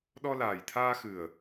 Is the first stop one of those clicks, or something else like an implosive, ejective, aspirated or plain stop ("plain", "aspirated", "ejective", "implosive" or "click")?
implosive